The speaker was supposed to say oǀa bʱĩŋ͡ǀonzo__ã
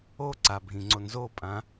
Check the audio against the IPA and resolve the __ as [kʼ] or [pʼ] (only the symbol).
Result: pʼ